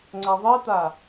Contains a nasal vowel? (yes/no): no